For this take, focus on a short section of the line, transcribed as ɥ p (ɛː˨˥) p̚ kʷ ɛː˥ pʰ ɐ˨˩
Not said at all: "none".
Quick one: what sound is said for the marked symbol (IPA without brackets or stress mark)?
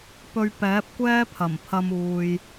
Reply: ɛː˨˥